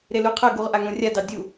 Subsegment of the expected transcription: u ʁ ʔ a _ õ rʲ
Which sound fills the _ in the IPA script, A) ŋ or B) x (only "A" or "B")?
A